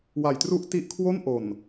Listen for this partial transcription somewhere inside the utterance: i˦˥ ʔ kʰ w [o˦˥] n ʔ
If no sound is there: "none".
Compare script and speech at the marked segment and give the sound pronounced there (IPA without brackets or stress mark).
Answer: o˥˩